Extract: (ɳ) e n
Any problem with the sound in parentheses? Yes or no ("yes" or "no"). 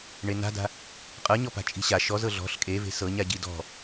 no